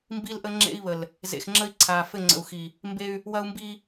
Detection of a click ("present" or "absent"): present